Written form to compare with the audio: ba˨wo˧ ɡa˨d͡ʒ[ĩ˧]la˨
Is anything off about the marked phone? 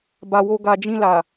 no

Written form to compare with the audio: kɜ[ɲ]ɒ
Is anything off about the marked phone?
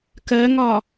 yes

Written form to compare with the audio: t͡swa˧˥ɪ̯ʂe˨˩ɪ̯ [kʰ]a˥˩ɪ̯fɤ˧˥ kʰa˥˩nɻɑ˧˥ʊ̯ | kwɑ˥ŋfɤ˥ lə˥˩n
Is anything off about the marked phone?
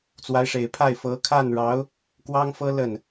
yes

